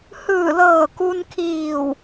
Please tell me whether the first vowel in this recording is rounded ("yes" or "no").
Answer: no